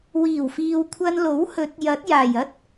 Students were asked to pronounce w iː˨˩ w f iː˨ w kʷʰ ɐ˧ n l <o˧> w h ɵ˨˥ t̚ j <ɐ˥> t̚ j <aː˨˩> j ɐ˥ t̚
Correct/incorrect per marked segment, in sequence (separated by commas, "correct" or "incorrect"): incorrect, incorrect, correct